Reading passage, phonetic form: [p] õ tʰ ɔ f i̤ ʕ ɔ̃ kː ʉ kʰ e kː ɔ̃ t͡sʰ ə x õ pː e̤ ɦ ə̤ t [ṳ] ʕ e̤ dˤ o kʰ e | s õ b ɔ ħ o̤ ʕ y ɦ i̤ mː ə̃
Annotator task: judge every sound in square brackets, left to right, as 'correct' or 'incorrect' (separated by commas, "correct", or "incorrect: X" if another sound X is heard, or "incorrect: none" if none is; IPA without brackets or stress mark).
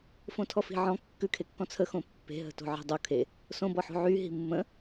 incorrect: f, incorrect: o̤